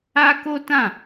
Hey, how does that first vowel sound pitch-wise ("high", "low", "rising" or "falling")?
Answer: high